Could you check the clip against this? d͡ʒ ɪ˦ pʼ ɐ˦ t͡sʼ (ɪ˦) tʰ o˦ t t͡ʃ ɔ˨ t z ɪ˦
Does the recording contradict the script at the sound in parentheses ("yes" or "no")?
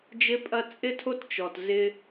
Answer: no